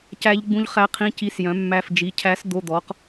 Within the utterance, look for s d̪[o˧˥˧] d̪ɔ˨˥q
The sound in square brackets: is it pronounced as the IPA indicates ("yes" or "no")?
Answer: yes